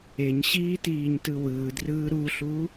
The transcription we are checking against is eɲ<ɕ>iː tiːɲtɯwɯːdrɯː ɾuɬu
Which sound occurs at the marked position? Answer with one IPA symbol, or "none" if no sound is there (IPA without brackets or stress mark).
ɕ